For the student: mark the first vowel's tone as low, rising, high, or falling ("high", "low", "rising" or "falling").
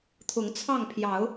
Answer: rising